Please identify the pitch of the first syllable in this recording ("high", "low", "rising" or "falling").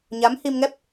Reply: rising